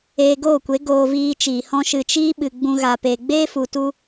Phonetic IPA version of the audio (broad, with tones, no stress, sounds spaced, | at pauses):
eː˧ ɡ oː˦˨ kʷ e˨˦ ɡ oː˧ v iː˧ t͡ʃ iː˨ h ɔ̃˦ ʃ ɨ˧ t͡ʃ iː˦ ɓ ɨ˨ ɡ͡b ũ˦ ɣ a˧ p e˧ ɡ͡b eː˦ f u˨ t u˧